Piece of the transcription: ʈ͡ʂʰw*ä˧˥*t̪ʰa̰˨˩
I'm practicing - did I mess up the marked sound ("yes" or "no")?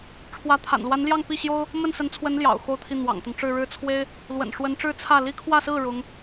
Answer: no